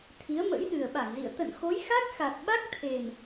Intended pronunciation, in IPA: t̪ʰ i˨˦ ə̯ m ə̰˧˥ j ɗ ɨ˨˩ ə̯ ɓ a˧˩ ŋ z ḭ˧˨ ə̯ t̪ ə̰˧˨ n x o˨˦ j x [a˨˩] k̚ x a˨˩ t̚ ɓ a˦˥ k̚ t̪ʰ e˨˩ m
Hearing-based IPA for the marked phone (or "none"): a˦˥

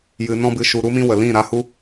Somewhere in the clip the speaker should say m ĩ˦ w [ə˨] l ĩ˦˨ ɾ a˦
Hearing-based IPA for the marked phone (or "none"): ə˨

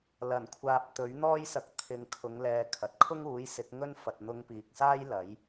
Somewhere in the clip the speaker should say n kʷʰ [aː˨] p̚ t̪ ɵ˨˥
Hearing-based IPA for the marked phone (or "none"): aː˨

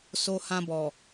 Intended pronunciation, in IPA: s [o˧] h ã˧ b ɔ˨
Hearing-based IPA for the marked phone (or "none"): o˧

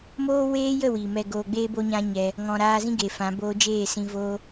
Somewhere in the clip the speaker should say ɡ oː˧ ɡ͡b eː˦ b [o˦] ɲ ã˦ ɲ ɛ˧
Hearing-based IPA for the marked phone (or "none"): o˦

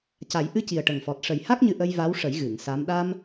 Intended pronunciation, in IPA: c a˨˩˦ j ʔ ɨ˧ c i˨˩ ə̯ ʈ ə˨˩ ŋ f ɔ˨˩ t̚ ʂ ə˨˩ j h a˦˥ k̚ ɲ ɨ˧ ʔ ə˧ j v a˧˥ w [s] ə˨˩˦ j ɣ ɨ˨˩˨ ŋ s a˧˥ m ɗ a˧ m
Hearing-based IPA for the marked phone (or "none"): ʂ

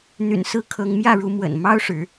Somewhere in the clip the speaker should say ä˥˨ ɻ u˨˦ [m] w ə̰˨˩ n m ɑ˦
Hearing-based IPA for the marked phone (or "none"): m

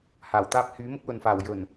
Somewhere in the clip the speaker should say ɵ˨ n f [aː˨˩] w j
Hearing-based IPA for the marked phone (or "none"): aː˨˩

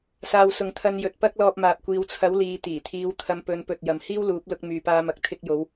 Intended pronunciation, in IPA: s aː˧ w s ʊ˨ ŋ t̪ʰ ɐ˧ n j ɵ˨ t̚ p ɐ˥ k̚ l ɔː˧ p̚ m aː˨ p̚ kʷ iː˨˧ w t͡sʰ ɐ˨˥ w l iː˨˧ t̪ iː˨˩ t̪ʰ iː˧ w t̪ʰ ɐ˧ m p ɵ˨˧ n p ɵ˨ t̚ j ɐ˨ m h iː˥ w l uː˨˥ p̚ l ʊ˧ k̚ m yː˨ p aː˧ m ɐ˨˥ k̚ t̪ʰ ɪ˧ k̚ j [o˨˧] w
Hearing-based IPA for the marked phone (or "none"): o˨˧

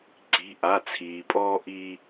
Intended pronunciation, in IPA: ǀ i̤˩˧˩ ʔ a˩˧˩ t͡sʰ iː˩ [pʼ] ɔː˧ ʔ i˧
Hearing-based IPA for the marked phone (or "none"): pʼ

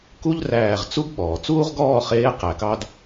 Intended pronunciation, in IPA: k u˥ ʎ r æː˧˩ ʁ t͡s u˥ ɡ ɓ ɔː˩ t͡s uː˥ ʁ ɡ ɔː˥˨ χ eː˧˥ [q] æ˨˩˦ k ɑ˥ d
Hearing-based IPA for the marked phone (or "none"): q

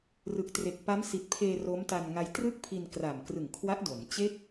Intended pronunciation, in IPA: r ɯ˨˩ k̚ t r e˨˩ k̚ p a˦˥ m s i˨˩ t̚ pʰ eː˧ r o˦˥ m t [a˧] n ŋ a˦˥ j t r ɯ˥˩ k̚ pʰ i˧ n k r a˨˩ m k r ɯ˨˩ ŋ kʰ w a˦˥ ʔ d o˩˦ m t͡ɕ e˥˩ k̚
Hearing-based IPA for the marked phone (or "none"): a˧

